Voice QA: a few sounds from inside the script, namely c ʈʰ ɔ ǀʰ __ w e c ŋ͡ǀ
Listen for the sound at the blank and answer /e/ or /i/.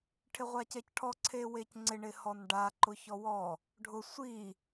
e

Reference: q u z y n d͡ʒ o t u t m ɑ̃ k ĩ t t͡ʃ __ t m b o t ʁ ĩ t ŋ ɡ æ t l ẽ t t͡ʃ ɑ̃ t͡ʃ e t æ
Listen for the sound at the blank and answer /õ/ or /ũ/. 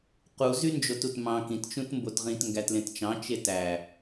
ũ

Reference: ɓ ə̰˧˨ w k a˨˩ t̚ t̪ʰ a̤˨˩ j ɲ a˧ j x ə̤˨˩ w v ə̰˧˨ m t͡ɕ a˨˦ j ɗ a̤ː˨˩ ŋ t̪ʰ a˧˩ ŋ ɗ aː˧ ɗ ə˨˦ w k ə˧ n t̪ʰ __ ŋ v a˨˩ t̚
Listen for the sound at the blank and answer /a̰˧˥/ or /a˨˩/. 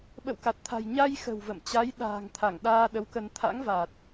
a̰˧˥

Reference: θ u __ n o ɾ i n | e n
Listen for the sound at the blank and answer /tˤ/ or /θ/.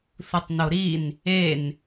tˤ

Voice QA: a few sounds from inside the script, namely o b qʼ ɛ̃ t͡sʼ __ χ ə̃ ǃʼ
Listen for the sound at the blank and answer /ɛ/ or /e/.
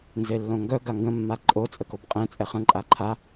ɛ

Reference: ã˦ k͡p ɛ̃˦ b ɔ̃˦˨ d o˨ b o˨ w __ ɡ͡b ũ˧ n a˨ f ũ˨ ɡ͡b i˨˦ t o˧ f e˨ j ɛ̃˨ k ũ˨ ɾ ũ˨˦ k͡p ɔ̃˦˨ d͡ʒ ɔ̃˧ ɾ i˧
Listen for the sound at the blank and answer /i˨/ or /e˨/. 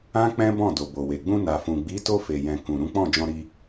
e˨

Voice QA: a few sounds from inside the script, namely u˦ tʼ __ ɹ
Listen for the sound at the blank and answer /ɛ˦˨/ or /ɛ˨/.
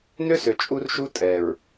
ɛ˨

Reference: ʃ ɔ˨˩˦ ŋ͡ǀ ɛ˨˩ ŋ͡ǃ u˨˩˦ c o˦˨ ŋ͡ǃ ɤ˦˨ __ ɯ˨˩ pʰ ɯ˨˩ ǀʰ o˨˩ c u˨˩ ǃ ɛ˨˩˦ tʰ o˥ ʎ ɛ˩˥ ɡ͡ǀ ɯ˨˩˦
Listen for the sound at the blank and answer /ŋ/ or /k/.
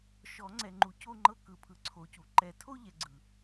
k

